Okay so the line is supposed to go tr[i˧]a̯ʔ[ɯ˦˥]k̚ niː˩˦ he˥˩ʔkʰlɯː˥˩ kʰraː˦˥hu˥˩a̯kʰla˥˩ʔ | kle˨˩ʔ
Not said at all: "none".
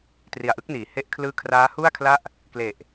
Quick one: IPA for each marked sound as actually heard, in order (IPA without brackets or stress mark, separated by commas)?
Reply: i˨˩, ɯ˦˥